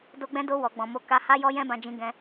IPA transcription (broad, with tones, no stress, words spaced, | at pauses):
do˧ɡ͡bɛ̃˧do˧ wɔ˨ɡ͡bɔ̃˨mo˨˦ ka˧ha˦ jɔ˦jɛ̃˦bã˧ d͡ʒĩ˧ɡɛ̃˧